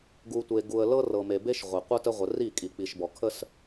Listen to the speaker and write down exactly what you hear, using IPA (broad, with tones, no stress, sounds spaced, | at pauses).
ɡ u˨ tʷ e˨ ɡ u˨ ə̯ l ɤ˦ r ɤ˨ m e˨ b e˦ ʃ ʁʷ e˨ qʷ ə˦ t ə˦ ʁʷ ə˨ r i˦˨ kʼ i˨ k͡p i˨ ʃ b ɔ˨ kʰ ə˦ s